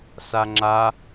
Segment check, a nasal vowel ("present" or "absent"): absent